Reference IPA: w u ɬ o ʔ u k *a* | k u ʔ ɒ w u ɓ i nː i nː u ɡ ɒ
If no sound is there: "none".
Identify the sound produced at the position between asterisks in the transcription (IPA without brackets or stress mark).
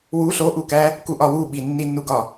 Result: æ